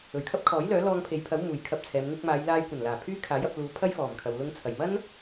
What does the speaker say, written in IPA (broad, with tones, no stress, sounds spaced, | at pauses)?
ɵ˨˩ ɥ kʰ ɐ˥ p̚ kʰ ɔː˨˥ j l œː˨˥ l ɔː˧ ŋ pʰ e˨˧ j pʰ ɐ˨˥ w m uː˨ j kʰ ɐ˧ p̚ t͡sʰ ɛː˨˧ m ŋ ɪ˧ k̚ m aː˨˧ j l aː˧ j kʷ ɐ˨˩ n l aː˨˩ pʰ yː˥ kʰ aː˨˥ j ɐ˧ p̚ l uː˨˥ pʰ ɐ˥ j f ɔː˨˩ m kʰ ɐ˨ w l ʊ˧ ŋ t͡sʰ ɐ˨˩ j m ɐ˥ n